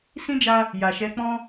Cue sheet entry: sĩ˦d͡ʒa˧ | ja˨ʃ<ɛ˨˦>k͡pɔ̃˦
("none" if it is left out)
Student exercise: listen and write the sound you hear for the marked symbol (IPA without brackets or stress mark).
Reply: ɛ˨˦